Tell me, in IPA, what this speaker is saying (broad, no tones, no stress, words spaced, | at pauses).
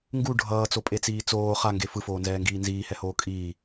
ŋɡu ɖʱʌːt͡sopʼet͡siː t͡soː χaŋɡe fɯfoːnzɛːŋɡiː nziːhɛhoː kʼiː